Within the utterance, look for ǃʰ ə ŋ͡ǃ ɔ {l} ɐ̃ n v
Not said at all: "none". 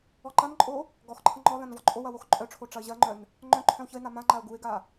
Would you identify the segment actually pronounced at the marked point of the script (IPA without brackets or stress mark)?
l